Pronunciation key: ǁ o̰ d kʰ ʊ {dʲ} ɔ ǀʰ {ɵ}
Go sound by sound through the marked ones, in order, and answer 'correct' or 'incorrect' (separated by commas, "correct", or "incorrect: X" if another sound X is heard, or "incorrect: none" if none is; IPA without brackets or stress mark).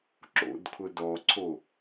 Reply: incorrect: d, incorrect: o